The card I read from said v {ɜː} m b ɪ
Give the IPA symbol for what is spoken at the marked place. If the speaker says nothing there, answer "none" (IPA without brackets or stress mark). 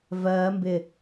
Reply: ɜː